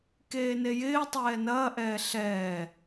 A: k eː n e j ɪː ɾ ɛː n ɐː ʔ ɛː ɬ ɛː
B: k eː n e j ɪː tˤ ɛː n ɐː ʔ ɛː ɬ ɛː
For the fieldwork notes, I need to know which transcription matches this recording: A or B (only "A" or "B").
B